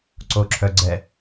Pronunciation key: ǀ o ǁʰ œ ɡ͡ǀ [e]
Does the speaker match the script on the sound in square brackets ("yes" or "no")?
no